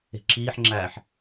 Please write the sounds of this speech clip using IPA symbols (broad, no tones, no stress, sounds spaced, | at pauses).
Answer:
e̤ ǁ iː ħ ŋ͡ǁ æː ħ